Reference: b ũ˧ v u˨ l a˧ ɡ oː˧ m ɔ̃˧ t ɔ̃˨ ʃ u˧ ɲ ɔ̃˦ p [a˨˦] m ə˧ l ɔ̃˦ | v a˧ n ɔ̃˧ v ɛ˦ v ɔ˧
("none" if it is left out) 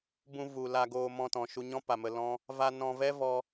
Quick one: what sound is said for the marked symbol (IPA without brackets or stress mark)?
a˨